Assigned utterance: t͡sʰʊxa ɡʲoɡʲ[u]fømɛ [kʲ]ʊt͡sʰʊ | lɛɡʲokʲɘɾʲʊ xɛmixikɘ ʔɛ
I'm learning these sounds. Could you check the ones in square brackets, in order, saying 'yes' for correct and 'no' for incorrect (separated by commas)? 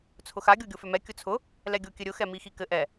no, yes